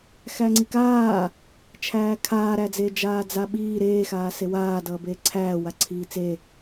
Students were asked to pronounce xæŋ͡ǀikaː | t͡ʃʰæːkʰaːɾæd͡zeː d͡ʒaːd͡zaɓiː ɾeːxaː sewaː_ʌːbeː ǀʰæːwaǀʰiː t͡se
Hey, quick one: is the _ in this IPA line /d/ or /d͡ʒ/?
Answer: d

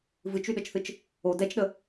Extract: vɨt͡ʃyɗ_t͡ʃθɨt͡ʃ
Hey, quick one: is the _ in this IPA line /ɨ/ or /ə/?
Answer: ə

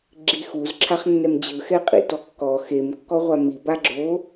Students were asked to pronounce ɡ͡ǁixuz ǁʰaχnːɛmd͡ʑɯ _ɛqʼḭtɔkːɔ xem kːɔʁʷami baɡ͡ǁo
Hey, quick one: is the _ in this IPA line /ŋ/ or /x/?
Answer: x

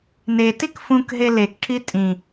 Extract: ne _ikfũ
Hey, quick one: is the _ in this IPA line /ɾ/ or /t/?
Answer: t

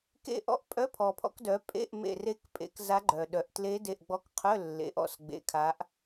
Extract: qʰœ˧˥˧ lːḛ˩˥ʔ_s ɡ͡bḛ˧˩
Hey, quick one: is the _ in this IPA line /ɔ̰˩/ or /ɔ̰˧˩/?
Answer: ɔ̰˧˩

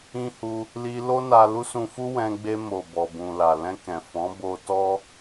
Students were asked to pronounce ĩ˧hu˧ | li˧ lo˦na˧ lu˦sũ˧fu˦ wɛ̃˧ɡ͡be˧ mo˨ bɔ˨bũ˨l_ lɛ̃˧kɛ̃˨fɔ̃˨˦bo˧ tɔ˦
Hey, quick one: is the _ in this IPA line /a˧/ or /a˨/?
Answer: a˨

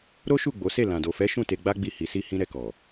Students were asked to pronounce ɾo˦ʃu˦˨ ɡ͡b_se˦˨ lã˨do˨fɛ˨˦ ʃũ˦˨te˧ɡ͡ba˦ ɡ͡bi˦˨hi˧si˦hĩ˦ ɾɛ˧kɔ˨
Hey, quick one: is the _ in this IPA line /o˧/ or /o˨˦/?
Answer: o˨˦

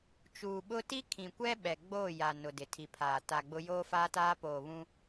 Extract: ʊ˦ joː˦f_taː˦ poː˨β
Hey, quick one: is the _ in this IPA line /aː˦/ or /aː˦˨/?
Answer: aː˦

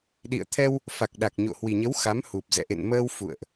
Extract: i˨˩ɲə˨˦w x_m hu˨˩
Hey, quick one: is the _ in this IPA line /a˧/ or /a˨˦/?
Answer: a˨˦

